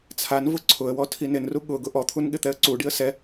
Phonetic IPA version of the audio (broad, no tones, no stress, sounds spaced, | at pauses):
t͡sʰ a n v ʊ ǀʰ ʊ ə̯ w ɔ tʰ i n ɪ n r u ɠ ʊ ɡ ʊ ʔ ɔ t̪ʰ u n ɠ ɪ t̪ ɛ ə̯ ǀ u ɖ i ə̯ s ɛ